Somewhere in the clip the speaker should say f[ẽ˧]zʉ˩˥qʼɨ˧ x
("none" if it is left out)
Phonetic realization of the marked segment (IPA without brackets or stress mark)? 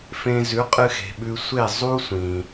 ẽ˧